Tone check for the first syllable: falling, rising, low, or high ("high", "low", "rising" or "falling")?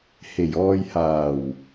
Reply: low